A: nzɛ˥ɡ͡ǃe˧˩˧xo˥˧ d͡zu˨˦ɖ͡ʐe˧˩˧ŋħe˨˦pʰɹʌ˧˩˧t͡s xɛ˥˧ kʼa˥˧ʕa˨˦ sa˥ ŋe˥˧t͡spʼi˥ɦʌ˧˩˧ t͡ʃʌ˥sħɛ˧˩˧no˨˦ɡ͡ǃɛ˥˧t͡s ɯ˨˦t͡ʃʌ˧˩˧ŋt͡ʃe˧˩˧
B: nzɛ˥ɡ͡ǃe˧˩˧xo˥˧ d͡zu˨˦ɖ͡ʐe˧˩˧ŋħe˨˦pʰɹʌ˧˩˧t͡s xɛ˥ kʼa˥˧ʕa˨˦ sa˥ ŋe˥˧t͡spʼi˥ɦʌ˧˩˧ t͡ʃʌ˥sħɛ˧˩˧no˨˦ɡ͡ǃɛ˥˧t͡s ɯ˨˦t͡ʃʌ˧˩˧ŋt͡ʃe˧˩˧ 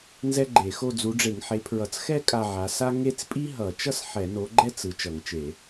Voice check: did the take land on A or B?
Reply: A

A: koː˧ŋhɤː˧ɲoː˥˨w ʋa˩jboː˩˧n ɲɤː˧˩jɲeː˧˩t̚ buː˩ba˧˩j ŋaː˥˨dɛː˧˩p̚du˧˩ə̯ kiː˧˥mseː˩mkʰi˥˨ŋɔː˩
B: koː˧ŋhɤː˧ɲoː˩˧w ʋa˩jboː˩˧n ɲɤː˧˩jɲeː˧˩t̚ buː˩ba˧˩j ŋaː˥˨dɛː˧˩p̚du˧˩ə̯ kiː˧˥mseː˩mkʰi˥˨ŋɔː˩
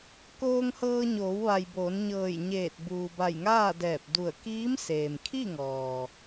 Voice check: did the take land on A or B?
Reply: B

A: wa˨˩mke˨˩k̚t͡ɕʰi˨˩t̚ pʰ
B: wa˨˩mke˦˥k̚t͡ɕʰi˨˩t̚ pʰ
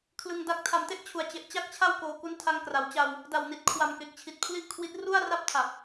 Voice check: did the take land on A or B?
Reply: A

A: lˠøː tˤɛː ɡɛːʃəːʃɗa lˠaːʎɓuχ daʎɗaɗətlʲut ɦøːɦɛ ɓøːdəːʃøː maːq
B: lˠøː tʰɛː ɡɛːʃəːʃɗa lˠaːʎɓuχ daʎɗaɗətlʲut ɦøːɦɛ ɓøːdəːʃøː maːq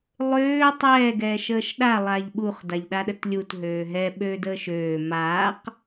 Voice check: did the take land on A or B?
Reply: A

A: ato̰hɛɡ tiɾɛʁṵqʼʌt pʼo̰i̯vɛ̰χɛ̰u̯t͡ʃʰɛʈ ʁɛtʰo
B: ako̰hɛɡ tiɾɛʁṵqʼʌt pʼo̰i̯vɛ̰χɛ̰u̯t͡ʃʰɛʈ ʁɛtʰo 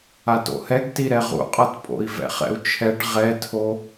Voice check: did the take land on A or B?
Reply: A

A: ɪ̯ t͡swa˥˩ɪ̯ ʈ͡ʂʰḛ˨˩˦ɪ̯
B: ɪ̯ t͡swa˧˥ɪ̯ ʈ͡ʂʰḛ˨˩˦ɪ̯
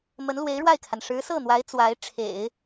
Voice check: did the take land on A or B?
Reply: B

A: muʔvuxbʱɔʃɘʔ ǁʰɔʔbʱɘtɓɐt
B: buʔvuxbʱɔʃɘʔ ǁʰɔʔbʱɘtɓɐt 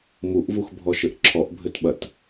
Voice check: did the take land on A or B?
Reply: A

